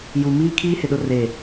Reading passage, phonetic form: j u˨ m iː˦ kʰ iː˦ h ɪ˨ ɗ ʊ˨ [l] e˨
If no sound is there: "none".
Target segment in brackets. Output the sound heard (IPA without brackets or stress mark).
r